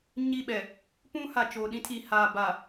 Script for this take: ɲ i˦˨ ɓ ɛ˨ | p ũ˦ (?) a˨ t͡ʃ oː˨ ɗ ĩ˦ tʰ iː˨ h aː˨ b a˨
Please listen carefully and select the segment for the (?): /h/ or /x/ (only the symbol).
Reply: h